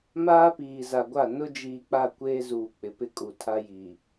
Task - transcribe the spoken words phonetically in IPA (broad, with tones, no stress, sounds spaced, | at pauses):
m aː˦ p iː˨ z a˨ ɡʷ a˦˨ n ʊ˦ d͡ʒ iː˨ k͡p a˦˨ kʷ eː˦ z uː˨ k͡p ɪ˨ p ɪ˦ kʼ u˨ tʰ a˦ j i˨